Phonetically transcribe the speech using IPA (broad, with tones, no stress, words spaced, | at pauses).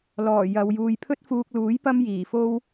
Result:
lɔː˨˩ jɐ˨˧w juː˨jpʰɵ˥t̚fuː˧k̚luː˨˥j pɐ˥mjiː˨˩fo˥w